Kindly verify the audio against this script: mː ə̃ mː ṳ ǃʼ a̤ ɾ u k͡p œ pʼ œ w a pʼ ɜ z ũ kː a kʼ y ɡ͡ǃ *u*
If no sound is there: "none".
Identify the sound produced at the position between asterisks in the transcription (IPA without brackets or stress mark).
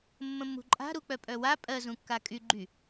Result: y